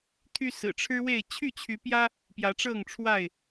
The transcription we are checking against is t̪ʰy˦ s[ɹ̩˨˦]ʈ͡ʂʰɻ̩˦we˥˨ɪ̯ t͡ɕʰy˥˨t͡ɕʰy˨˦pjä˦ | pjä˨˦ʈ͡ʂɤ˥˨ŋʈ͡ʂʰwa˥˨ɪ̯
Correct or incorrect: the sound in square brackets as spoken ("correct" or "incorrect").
incorrect